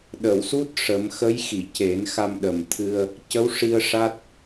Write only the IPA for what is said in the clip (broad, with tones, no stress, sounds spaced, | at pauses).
ɗ ə˨˩˨ w s u˦˥ t̚ ʂ ə˨˩˦ m x ə˧˥ j x i˨˩˨ c e˨˩˦ n x a˧ m ɗ ə˨˩ m t̪ʰ ɨ˧ ə̯ | c ə˧˥ w ʂ i˧ ə̯ ʂ a˦˥ t̚